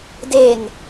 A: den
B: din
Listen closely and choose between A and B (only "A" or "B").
A